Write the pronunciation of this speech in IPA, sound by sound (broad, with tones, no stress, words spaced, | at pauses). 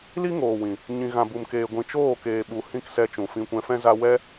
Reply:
li˦ŋoː˨wĩ˨ | ɲĩ˨ɣã˨bu˨mkeː˨ ɡʷĩ˨t͡ʃoː˦˨ keː˨ɓu˨ hĩ˦˨ksɛ˧t͡ʃũ˨ fĩ˧kʷɛ̃˧fɛ̃˦za˦ wɛ˦